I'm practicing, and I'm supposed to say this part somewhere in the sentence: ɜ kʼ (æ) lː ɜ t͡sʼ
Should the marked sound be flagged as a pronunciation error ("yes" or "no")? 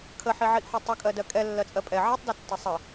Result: yes